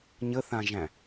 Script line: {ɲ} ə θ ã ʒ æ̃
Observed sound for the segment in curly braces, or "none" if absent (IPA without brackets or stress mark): ɲ